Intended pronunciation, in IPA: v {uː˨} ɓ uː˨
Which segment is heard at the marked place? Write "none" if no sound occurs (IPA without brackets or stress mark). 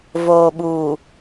oː˨